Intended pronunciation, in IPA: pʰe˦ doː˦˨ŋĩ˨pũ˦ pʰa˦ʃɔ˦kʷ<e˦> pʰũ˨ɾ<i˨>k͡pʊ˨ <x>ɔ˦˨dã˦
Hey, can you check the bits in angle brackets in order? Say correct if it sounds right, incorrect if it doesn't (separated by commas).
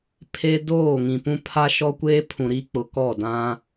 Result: incorrect, incorrect, incorrect